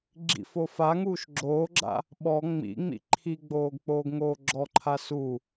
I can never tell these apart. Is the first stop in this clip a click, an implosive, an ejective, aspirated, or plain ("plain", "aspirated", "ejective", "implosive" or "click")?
click